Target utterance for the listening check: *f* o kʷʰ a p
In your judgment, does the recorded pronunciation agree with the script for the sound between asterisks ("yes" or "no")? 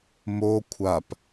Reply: no